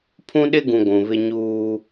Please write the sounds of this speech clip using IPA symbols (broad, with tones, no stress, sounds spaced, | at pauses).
pʰ ũ˦ ɗ ɪ˦ ɡ ũ˨ ɡʷ ũ˨ β ɪ˦ ɲ uː˦